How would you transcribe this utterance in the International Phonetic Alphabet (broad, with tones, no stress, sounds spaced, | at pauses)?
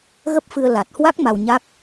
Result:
ɣ ə˦˥ p̚ f ɨ˧ ə̯ l a˨˩ t̚ h w a˦˥ k̚ m a˧ w ɲ a˦˥ k̚